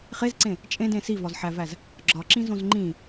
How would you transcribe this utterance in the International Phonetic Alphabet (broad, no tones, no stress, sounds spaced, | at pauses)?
χ e z ǀ ẽ | t͡ʃʼ ẽ d ẽ s i v ɒ z ħ æ v æ z | ɡ͡ǁ ɒ ǁ ĩ z õ z ŋ͡ǃ ĩ